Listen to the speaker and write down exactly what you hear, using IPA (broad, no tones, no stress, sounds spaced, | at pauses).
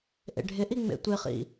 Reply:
ʔ ḛ ɖʱ ɪ ʔ i ŋ͡m ḛ tʷ ɪ χ ḭ